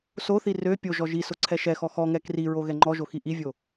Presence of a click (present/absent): present